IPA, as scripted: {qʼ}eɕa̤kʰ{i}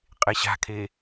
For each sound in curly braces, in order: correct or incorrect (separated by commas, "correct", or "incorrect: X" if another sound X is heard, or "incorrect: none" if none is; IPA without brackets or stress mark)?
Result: correct, incorrect: e